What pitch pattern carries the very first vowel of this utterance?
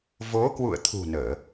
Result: rising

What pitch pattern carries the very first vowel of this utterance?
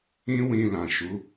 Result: high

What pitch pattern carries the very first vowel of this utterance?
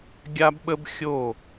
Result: high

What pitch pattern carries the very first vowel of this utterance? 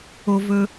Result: low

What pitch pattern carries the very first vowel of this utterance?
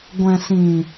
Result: low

